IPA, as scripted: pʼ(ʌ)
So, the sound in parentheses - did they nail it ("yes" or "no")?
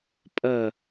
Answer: yes